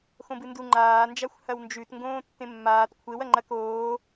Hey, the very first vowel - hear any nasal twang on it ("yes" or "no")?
yes